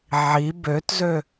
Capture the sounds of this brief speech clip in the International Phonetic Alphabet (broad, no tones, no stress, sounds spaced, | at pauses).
ʕ i b ø t z ø